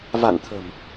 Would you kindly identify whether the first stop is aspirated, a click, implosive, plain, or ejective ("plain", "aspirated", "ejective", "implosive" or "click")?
aspirated